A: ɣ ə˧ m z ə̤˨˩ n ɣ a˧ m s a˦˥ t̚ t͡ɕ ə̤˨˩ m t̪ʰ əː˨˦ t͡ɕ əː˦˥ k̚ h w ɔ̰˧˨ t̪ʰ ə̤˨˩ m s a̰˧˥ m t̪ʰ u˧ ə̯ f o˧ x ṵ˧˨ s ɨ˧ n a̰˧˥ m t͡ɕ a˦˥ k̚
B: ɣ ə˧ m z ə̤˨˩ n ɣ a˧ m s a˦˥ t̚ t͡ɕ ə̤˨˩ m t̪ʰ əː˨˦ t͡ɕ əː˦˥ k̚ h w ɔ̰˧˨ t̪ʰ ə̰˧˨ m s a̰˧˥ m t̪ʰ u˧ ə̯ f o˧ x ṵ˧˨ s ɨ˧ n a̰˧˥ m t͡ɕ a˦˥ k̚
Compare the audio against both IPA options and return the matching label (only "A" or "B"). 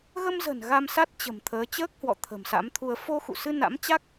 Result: A